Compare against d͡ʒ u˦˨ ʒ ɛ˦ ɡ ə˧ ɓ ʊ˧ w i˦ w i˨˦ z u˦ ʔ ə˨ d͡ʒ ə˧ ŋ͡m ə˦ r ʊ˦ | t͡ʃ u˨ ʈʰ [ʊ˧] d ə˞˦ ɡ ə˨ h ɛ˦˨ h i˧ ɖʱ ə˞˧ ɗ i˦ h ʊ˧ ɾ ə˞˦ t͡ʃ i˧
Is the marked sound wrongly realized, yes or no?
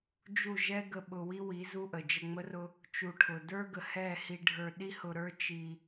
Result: yes